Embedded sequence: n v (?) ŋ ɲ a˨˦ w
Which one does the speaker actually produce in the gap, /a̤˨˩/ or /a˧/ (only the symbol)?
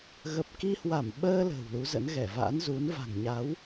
a̤˨˩